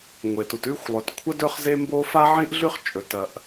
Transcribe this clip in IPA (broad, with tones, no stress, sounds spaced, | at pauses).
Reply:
ŋʷ e˩ t u˩ t ʉ˥ xʷ lˠ ɵ˩ t kʷʰ ɐ˥ d ɵ˥ χ z e˥ m b o˥ f a˥ ʕ ĩ˥ ʔ ɮ ʉ˥ χ t͡ʃʼ ɵ˩ t ɐ˩ ʔ